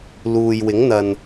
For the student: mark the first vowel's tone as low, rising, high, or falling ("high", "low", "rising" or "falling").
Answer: low